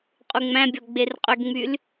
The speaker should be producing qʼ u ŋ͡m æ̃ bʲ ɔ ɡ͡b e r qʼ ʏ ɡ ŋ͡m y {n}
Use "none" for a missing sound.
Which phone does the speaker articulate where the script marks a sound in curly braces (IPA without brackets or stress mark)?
l